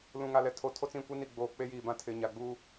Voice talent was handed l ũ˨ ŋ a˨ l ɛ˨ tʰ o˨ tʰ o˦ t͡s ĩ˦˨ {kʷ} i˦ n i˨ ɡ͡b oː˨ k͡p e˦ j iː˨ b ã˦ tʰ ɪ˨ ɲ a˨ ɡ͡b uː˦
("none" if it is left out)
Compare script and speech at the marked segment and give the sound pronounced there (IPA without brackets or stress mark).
kʷ